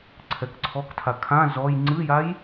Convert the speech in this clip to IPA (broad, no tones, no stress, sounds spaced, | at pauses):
ǀʰ ɛ k ǀʰ ɔ k tʰ a kʰ ã z ɔ j ŋ͡ǀ ɨ j a j